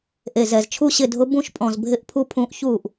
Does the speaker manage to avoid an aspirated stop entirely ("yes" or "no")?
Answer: no